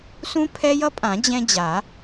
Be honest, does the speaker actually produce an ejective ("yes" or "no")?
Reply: yes